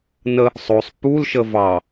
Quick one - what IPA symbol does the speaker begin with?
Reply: n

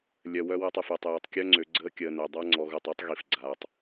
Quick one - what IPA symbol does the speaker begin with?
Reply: lʲ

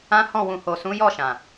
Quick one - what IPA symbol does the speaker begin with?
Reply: ã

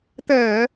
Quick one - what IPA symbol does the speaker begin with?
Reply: t̪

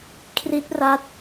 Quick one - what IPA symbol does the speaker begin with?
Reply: kʰ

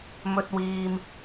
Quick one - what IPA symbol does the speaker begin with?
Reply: m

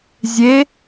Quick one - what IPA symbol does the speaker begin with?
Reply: zʲ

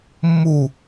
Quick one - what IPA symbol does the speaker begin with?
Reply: mː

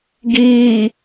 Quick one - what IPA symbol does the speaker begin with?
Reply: ɡ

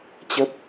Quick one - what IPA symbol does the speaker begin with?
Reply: t͡ɕ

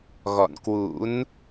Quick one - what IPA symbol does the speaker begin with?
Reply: ɣ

